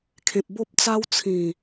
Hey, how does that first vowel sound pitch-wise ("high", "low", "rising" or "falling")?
low